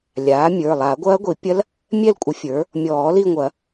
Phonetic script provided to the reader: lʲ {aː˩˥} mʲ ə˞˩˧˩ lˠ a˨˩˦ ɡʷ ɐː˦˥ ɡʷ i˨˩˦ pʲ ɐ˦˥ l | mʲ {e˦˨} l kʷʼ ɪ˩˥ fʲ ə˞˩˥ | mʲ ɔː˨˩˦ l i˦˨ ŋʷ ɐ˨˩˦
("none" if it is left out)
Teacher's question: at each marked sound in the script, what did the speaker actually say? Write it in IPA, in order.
aː˩˥, ɛ˦˨

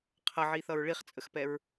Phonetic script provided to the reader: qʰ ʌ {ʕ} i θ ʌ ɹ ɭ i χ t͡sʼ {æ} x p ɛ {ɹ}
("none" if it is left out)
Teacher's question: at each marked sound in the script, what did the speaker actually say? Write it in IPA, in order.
ʕ, ə, ɹ

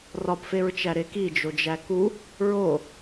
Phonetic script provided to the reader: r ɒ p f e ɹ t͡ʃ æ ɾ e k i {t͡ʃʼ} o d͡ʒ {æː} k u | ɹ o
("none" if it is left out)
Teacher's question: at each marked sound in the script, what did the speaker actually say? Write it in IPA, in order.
d͡ʒ, æ

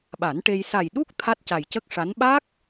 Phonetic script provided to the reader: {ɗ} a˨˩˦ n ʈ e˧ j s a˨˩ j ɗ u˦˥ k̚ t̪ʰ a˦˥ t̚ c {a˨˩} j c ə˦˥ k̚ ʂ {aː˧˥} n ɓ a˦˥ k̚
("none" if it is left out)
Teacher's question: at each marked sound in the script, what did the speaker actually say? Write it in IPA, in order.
ɓ, a˨˩, a˧˥

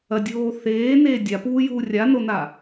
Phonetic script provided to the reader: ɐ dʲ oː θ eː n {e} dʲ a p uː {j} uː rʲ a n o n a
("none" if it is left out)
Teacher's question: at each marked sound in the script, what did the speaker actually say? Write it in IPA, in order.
eː, j

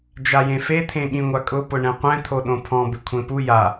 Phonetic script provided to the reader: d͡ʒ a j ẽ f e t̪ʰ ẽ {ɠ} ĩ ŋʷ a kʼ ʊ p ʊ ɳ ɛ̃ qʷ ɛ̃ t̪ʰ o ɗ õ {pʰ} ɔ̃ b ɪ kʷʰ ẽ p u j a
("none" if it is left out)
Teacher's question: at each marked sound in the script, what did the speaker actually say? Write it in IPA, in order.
ɠ, pʰ

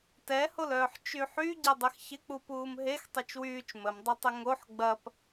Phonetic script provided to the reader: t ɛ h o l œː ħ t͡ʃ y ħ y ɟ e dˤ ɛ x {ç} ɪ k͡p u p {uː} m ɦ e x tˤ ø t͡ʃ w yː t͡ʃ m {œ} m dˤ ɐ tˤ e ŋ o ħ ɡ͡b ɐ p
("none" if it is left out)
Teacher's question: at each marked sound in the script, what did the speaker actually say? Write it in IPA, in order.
ç, uː, ə

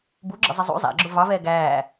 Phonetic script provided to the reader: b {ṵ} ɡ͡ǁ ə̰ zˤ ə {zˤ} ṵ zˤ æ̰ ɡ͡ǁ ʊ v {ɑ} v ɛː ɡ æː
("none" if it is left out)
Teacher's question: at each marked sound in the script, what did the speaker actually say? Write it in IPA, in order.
u, zˤ, ɑ

